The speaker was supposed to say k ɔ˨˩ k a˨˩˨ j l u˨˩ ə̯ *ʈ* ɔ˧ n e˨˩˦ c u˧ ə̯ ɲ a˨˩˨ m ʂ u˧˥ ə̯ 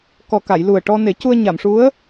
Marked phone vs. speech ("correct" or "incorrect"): correct